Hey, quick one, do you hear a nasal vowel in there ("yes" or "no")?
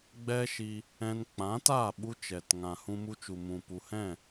yes